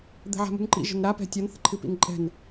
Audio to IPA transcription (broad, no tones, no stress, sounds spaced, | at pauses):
d̪ ɛ̤ ʕ a̤ m ṳ n ǃ ḭ ʒ ə̤ n ɾ a p ɛ̤ tʲ ʌ n θ ə̤ ǃʰ ɨ p ḭ n ǃʼ ɛ̤ n